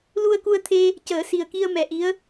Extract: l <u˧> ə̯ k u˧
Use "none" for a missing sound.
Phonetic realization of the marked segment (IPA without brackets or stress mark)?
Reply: u˧